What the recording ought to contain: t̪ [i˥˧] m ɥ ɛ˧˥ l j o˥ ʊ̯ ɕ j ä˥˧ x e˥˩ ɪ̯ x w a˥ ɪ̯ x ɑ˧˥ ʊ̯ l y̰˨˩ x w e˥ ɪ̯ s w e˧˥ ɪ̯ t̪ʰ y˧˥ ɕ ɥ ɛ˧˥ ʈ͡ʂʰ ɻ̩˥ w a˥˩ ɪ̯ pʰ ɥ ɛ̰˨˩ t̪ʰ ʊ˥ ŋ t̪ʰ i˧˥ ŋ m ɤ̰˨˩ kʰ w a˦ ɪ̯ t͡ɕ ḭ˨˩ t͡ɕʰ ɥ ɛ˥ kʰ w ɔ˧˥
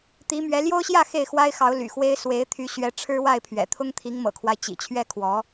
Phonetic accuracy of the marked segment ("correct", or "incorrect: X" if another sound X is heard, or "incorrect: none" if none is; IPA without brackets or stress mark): incorrect: i˧˥